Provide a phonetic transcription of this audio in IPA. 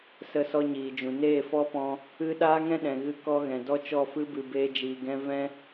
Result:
s ə˧ s ɔ˧ ɲ iː˨ d͡ʒ ũ˨ n eː˦˨ f ɔ˦ p ɔ̃˧ | ɨ˦ ɗ aː˦ ŋ ɛ̃˦ ɗ ɛ̃˨ ɣ ɨ˧ k ɔ˧ ɣ ɛ̃˨ d ɔ˦ t͡ʃ ɔ˦˨ f ɨ˦ b ɨ˨ b eː˧ d͡ʒ iː˨ ɡ ɛ̃˧ v ɛ̃˧

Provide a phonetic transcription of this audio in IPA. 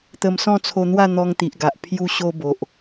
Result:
t̪ ə˧ m s ɔ̃˥˧ t͡sʰ o˧ n̪ w a˥˧ n̪ ɔ˧ ŋ t̪ i˨ ʔ ɡ a˨ ʔ pʰ j u˧ ɕ o˧ b o˨ ʔ

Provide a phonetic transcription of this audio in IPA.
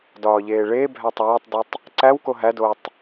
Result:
d ɒː ʎ eː ɭ e bʱ æ tˤ æː tˤ d i tˤ | ǀ æ w k o ɦ æ d oː tˤ

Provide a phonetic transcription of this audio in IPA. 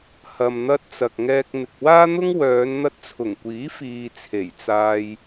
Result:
h ɐ˨ m n̪ ɐ˧ t̚ t͡s ɐ˨ k̚ ŋ ɛː˧ k̚ n̪ ɪ˨ k̚ w aː˥ n̪ ʊ˥ ŋ w œː˨˧ n n̪ ɐ˧ t̚ t͡sʰ ʊ˨˩ ŋ kʷ iː˨˥ f iː˨ t͡sʰ e˨˩ j t͡s aː˧ j

